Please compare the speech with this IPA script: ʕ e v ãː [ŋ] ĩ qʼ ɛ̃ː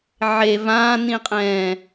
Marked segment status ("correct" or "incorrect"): incorrect